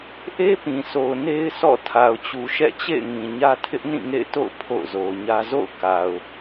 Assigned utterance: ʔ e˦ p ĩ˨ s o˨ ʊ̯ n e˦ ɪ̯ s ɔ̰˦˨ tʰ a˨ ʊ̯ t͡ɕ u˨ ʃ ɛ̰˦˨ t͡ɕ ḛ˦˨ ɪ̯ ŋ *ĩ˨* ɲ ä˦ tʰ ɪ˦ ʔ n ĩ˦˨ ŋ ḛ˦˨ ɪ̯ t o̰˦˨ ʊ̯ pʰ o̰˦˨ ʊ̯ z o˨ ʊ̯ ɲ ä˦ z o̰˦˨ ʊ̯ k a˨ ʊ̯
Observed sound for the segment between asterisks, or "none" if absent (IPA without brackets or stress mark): ĩ˨